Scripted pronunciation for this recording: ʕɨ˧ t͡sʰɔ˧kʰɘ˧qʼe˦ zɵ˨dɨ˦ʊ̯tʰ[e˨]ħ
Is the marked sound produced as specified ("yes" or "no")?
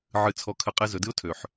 no